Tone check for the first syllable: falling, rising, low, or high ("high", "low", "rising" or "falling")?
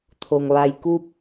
low